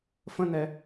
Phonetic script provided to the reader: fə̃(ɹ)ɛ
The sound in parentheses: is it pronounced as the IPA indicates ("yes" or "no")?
no